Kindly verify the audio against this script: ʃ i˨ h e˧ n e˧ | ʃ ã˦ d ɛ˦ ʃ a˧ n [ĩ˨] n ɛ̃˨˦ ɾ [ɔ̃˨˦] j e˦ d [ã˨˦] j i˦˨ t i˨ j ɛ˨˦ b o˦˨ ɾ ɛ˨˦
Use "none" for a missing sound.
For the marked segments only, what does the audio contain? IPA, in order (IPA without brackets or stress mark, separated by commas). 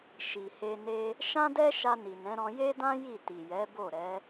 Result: i˨, ɔ̃˧, ã˦